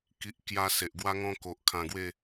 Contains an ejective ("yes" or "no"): no